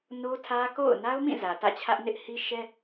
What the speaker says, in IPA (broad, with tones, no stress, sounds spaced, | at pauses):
n o˦ tʰ ä˦ k o̰˦˨ ʊ̯ n a˦ ʊ̯ m ĩ˦˨ z ä˨ t ä̰˦˨ t͡ɕʰ ä˦ ʔ n ɪ˦ ʔ h i˦ ʃ ɛ˦